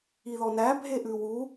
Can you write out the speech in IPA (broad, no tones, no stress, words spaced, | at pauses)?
iðɔnæ bʱeʔʉwu